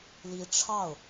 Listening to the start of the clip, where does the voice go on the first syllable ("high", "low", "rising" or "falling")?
rising